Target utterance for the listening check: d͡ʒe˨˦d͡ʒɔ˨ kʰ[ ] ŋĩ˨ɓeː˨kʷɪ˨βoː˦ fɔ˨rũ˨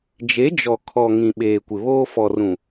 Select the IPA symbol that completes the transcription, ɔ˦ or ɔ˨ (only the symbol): ɔ˨